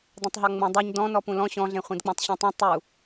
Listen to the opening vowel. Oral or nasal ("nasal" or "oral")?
nasal